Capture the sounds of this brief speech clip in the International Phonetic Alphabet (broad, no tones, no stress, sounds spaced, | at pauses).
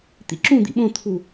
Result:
t̪ ḭ ǁ ũ d̪ ḭ ɓ õ t̪ʰ u